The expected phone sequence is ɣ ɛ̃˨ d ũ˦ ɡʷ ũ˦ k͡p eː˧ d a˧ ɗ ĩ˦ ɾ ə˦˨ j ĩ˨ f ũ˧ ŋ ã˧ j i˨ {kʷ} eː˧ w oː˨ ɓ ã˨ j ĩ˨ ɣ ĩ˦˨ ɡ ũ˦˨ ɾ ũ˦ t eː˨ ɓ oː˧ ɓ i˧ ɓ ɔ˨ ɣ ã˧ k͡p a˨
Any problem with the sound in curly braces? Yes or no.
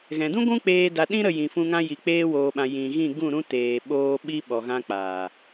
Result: yes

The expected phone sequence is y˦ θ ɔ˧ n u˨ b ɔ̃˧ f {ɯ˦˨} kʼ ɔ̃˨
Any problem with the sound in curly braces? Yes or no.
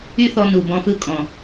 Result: no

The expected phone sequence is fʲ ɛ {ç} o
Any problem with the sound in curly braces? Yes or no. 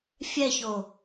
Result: no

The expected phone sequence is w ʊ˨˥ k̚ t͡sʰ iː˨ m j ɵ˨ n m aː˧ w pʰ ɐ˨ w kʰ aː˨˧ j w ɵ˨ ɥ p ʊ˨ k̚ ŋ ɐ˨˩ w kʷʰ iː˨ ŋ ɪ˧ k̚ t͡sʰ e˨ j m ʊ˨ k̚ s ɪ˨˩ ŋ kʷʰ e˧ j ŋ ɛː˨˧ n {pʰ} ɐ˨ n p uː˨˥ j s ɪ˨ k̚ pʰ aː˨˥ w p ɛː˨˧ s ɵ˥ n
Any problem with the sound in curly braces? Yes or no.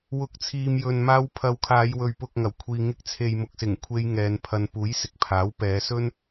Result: no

